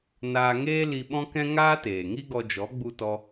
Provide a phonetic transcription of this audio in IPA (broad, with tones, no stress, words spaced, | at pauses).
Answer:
naː˧ŋeː˦ li˧ɓɔ̃˦kɛ̃˦ ŋaː˦teː˨ŋi˦ ɡɔ˧d͡ʒɔ˨˦ ɡ͡bu˦tɔ˦